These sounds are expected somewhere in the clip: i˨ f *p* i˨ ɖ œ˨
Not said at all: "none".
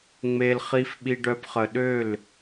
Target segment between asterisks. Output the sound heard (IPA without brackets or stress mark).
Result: ɓ